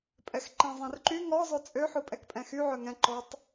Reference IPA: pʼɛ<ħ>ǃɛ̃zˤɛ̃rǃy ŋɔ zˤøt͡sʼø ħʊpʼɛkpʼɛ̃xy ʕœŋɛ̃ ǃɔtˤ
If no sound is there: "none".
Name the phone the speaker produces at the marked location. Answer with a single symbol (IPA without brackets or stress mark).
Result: x